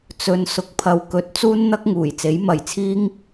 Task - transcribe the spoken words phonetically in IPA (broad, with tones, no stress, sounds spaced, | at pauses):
t͡s ɵ˧ n s ʊ˨ k̚ pʰ ɐ˨ w k ɵ˨˥ t̚ t͡s uː˥ n n̪ ɐ˥ k̚ ŋ uː˨˩ j t͡s e˨˥ j m ɐ˨ j t͡sʰ iː˥ ŋ